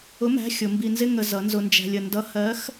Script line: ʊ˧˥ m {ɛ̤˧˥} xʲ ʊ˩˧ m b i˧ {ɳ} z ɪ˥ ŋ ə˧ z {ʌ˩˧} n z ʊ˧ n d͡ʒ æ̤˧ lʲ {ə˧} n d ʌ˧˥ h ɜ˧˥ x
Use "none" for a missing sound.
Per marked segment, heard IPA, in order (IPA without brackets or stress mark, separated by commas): æ̤˧˥, n, ʌ˩˧, ə˧